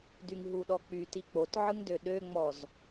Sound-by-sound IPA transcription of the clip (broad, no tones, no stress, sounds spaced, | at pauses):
d y ŋ ɦ u ɗ ɔ k͡p y t i k͡p o t ʕ ɯ ŋ d ø ɗ ø ŋ͡m ɔ z